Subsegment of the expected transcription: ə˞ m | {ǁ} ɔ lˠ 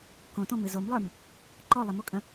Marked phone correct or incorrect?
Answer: incorrect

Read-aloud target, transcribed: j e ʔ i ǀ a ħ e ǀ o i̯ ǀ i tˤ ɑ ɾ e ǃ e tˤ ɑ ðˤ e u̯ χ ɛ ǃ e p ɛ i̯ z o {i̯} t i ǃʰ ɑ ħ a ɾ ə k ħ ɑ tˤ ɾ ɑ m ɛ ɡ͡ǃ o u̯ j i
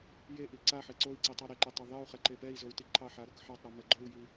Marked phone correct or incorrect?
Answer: incorrect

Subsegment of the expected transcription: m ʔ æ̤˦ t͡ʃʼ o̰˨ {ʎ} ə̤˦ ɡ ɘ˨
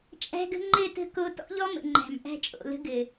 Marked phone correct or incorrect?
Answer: incorrect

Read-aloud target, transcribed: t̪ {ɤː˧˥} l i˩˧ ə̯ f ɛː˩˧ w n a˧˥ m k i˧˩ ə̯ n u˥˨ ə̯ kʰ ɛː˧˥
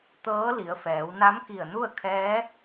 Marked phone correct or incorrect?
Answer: correct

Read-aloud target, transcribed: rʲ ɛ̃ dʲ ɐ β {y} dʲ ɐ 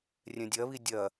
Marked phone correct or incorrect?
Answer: incorrect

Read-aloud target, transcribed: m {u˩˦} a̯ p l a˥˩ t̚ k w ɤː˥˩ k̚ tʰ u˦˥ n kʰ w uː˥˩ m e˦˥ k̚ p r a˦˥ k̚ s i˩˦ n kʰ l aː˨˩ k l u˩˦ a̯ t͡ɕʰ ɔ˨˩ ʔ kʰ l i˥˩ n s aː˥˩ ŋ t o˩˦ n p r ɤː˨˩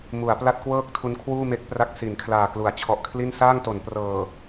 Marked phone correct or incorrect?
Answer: correct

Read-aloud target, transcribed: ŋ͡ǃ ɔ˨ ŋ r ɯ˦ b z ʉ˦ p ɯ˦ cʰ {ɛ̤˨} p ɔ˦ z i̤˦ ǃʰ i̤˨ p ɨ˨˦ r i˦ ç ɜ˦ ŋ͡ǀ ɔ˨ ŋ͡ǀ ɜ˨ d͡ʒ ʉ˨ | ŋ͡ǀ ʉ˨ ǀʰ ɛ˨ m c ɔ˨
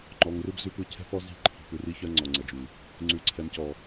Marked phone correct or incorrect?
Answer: incorrect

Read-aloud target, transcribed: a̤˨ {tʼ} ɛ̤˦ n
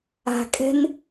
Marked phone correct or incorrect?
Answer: incorrect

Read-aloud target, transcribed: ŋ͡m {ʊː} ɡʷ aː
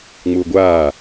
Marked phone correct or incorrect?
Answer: correct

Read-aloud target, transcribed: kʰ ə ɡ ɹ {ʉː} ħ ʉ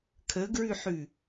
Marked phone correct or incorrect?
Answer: incorrect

